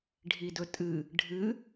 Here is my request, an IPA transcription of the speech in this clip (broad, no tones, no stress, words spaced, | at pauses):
ɖʱidɵtʼɨ | ɖʱɨ